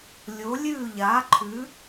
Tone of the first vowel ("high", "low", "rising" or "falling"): rising